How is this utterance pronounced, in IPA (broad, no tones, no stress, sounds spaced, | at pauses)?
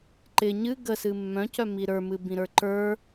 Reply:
ǃ ɪ ɲ ɨ ɡ ə s ɨ mː œ̃ c œ m i ɾ ə˞ m ɨ b ĩ ɾ ə˞ ǃ ə˞